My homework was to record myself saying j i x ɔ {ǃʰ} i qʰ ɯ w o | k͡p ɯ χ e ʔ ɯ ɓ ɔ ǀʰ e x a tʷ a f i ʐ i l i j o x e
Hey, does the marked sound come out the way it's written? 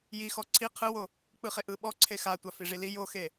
no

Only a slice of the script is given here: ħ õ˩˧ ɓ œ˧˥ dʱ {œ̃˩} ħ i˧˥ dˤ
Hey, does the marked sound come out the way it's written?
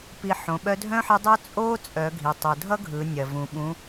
no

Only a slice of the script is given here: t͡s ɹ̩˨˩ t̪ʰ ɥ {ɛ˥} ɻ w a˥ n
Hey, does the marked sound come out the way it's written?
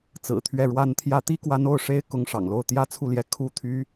no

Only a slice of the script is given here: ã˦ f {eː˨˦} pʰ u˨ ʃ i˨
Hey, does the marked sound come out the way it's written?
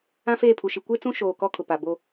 no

